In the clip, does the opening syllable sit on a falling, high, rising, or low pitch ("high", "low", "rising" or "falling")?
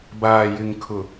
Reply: low